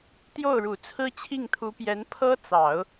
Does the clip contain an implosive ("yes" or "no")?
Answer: no